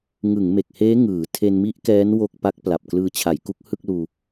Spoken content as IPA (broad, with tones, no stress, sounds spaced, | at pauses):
ŋ ɯ˩˦ ŋ m e˨˩ k̚ h eː˦˥ ŋ ɯː˩˦ tʰ e˧ n m i˦˥ ʔ k ɛː˦˥ n w o˥˩ k̚ p a˦˥ k̚ p l a˨˩ p̚ k l ɯː˧ t͡ɕʰ a˩˦ j k u˦˥ k̚ h ɯ˥˩ k̚ l uː˧